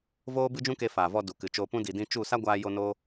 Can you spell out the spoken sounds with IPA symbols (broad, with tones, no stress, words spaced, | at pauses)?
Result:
voː˦bɨ˦d͡ʒũ˦ke˧ faː˨vɔ˧ du˨kɨ˨t͡ʃoː˧pũ˦ di˨dĩ˧t͡ʃu˦˨ sa˦ɡʷaː˧jo˧ no˦